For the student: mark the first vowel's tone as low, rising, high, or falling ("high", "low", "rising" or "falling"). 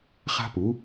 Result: high